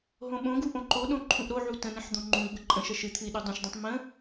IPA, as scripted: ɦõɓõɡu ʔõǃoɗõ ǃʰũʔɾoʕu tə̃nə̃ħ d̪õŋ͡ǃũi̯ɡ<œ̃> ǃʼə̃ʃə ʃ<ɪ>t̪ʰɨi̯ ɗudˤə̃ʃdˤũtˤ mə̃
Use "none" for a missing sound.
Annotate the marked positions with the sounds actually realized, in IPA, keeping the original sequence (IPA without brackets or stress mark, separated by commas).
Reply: ə̃, ɨ